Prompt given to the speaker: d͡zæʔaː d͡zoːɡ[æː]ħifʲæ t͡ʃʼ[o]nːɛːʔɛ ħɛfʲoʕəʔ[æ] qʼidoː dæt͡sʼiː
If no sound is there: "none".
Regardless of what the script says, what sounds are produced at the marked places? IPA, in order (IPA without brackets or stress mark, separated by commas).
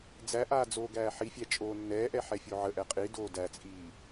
æː, oː, ɛ